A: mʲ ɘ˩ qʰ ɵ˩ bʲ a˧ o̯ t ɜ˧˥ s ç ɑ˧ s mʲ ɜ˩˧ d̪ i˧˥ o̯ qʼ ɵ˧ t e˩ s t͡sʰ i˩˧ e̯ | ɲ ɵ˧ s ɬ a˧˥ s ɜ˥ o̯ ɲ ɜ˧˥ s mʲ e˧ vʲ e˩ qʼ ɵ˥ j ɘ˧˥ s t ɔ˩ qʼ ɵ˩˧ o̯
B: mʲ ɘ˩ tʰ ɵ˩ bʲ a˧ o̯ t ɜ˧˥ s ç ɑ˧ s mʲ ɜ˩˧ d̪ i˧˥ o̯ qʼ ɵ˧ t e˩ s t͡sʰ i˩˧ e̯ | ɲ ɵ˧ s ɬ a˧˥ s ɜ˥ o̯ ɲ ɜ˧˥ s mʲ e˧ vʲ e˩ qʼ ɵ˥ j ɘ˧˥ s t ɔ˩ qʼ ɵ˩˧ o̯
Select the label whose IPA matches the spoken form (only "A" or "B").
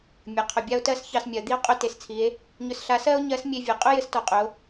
A